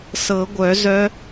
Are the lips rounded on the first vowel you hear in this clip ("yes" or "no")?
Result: no